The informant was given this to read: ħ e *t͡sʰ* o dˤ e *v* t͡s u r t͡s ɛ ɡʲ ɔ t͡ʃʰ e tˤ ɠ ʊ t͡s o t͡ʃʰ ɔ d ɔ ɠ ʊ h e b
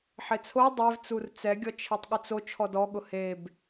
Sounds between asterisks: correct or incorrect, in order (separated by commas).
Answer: correct, correct